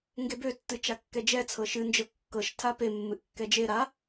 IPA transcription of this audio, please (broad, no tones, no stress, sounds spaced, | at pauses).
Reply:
ŋ ɡ e b ø tː ɨ t͡ʃ a kː ɛ d͡ʒ ɛ t͡sʰ ɤ ʃ ɨ n d͡ʒ ɤ kː ɤ ʃ tʰ a p e mː ɨ ʔ kː ɛ d͡ʒ e ɾ a